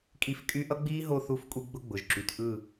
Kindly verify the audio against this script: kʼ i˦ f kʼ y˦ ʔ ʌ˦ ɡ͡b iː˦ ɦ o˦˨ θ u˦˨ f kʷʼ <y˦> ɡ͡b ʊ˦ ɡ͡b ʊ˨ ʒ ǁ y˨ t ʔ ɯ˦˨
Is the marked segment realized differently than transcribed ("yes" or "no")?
yes